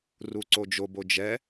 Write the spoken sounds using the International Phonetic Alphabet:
r u ǀ o d͡ʒ o b o d͡ʒ ɛ

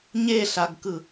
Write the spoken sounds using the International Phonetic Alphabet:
ɲ e ɬ a ɡ k ɯ

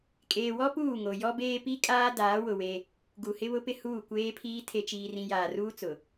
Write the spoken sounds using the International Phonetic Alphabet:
kʼ eː˨ w ɔ˦ p uː˦˨ ŋ o˨ j ɔ˦ b eː˦ p i˦ kʼ aː˦ d aː˨˦ w ʊ˨ w e˦ | ɡ u˨ h ɪ˦ β ʊ˦ p ɪ˦ h uː˦˨ kʷ eː˦ pʰ iː˦ tʰ e˨ t͡ʃ iː˨ r ĩ˨ j aː˨ r uː˦ t͡s ʊ˨

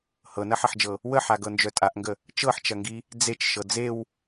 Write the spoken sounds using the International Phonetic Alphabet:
h ɤ n ɐ ħ ɐ ħ d͡ʒ ɤ | w ə ħ a ɡ ɤ n d͡ʒ œ tʼ a ʔ ŋ ɡ ə | t͡ʃ ɤ ħ t͡ʃ ɐ ŋ ɡ i | d͡z e t͡ʃ ʃ ɤ d͡z e w

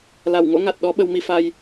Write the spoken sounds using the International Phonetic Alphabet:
l a˧˩ w ŋ o̰˧˥ ŋ a˨˩ t̚ ɗ ɔ˨˦ ɓ ə˧ w m i˧ f a˧ j

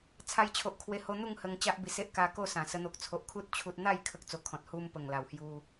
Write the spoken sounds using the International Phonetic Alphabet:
t͡sʰ a˧ j t͡ɕʰ o˨ ʔ kʰ w e˧ h o˧ n̪ u˥˧ ŋ h ə˧ ŋ t͡ɕ a˦ ʔ b i˨˩ s e˦ ʔ k a˧ k o˥˧ s ã˨˩ s ə˧ n̪ o˨ k̚ t͡sʰ o˨ ʔ kʰ u˦ t̚ t͡ɕʰ u˦ t̚ n̪ a˥˧ j kʰ ə˦ k̚ t͡s o˧ kʰ ɔ̃˨ t̚ h u˦ m p ə˨˩ ŋ l a˨˩ w h j u˧

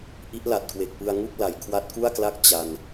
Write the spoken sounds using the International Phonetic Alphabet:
ʔ i˦˥ ʔ l a˨˩ t̚ k w e˨˩ k̚ p ɯ˧ a̯ ŋ u˥˩ k̚ l a˩˦ j kʰ w a˦˥ t̚ k u˥˩ a̯ k l a˥˩ k̚ t͡ɕ a˧ n

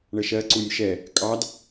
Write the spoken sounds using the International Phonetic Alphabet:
ɳ ə ʃ ɜ ǀ u nʲ ʃ ɛ | kʼ ɑ d

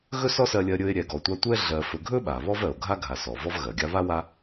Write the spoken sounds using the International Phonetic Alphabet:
ɣ ɵ˥ s ɔ˥ s ɜ˦ lʲ ɜ˦ ɾʲ ɵ˦ e̯ ɾʲ ɛ˨ ɡ ɔ˨ tʷ a˦ tʷ ɛ˥ ɮ ɜ˨ f ɵ˨ ɡʱ ɵ˥ ɓ a˩ β ɔ˥ v ɜ˩ o̯ ɡʱ a˥ ɡʱ a˨ s ɔ˩ v ɔ˦ v ɣ ɜ˩ ɡʲ a˥ β a˥ w a˦

